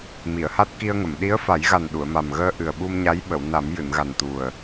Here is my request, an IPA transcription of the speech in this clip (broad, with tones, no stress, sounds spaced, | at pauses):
m i˨˩˨ ə̯ h a˦˥ t̚ k i˧ ə̯ ŋ ə˨˩˨ m ɗ i˧˥ ə̯ f a˨˩˦ j ɣ a˨˩ n ɗ u˨˩˨ ə̯ m a˨˩ m ɣ əː˧ ʔ ɨ˨˩ ə̯ ɓ u˧ m ɲ a˧˥ j ɓ ə˨˩˨ w n a˨˩˦ m j ɨ˨˩˨ n ɣ a˨˩ n t̪ u˨˩ ə̯